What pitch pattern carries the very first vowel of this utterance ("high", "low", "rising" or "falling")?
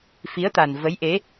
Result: rising